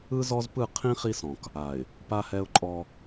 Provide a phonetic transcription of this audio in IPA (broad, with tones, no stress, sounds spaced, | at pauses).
ɯ˦ z ɔ˦ z p ɯ˦˨ qʰ ĩ˦ χ i˦ s ɔ̃˨ k | a˨ ɪ̯ | p a˦ h ɛ˦ ʊ̯ ǃʼ ɔ˦